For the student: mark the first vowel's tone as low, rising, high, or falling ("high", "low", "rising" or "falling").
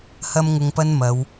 high